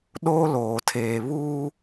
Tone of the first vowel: high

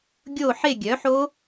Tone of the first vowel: falling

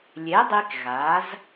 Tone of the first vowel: rising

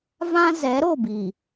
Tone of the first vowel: high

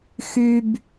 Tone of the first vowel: high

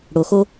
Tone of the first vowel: low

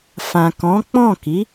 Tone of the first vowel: low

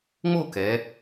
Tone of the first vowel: falling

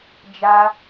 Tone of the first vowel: high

